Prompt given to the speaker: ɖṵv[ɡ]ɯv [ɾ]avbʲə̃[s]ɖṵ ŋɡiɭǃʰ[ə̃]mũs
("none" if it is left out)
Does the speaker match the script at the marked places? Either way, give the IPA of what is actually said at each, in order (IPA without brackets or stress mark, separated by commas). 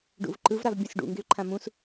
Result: ǃ, ɾ, s, ã